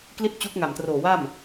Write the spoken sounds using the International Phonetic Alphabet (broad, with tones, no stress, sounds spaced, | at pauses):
k l i˥˩ t̚ t͡ɕ u˦˥ k̚ ŋ a˨˩ m t r oː˨˩ w a˥˩ m